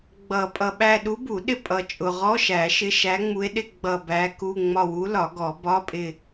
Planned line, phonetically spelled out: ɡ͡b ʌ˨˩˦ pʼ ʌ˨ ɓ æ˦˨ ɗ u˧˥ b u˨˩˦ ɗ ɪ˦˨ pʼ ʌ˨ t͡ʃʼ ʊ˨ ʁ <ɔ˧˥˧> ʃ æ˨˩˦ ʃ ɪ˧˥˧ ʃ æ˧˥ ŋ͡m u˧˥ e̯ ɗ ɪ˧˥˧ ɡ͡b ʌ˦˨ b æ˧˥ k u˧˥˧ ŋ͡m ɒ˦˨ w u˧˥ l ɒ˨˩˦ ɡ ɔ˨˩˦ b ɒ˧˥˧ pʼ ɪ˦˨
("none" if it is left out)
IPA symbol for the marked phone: ɔ˧˥˧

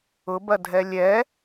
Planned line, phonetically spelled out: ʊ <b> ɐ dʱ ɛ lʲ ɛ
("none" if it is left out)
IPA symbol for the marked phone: b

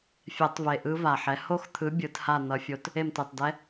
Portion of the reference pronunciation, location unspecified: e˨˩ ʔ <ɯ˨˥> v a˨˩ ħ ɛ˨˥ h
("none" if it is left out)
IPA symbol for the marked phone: ɯ˦˥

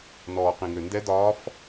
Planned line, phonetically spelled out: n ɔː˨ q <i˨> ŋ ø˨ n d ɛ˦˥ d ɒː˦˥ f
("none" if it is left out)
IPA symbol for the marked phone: ĩ˨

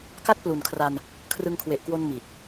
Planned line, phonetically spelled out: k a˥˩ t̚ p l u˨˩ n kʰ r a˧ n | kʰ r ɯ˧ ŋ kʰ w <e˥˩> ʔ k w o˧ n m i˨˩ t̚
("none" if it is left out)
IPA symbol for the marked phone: e˨˩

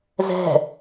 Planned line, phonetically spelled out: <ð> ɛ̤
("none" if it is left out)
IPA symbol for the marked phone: z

